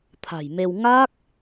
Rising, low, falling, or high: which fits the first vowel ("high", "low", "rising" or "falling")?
low